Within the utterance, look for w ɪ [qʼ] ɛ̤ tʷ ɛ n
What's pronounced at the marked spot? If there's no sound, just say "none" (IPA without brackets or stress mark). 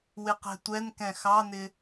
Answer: q